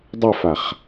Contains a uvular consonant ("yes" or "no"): yes